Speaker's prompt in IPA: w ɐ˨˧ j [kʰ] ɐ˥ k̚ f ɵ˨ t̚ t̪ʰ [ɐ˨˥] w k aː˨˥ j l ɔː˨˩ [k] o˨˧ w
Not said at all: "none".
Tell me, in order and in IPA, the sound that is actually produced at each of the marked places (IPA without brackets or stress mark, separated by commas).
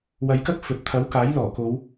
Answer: k, ɐ˨˥, k